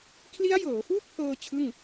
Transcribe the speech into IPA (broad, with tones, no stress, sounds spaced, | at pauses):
kʰ l i˦˥ a̯ j ɤː˩˦ f uː˥˩ k̚ pʰ ɤː˧ t͡ɕʰ ɯ˥˩ ŋ